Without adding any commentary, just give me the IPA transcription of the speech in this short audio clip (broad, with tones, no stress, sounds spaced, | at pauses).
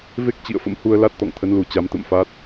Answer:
v e˦˥ k̚ t͡ɕ ḭ˧˨ ə̯ f ə̰˧˥ m h u˧ ə̯ l a˦˥ t̚ t̪ ɔ̰˧˨ ŋ t̪ʰ ə˨˦ n l u˨˩ t͡ɕ a˨˦ m t̪ ə̰˧˨ m f a˦˥ t̚